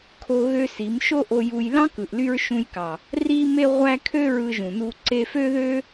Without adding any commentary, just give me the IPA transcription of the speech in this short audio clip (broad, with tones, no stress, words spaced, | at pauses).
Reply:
kʰo˧ ɣø˦si˨˦m ʃo˦ʔo˧ju˧j lɑ̃˦kɯ˨ʔly˧ɹ ʃũ˧jkɑ˨ | ri˦me˦ʁʷæ˦ kʰø˦ɹɯ˧ʒũ˨nu˧ ǀe˧fø˦ðø˦